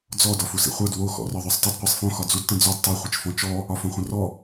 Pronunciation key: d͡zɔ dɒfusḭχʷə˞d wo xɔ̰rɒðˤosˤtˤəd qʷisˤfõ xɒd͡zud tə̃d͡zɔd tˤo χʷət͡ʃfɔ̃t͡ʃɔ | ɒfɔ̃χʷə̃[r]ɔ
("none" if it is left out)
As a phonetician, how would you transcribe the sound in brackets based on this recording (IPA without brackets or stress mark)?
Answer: r